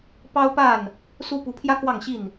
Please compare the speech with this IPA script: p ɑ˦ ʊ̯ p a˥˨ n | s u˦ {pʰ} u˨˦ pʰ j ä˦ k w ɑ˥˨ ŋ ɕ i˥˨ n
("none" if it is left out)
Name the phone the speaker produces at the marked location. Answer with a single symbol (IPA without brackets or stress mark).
p